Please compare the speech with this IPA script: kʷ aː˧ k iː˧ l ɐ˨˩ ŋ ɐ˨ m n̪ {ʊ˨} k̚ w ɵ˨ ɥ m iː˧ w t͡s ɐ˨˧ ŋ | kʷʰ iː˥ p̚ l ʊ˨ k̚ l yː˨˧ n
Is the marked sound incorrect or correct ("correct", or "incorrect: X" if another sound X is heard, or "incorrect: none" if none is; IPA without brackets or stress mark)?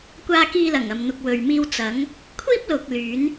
correct